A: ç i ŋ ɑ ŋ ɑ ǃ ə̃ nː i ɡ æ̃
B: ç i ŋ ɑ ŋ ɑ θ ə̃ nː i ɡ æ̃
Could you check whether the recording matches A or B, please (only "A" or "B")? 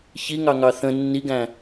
B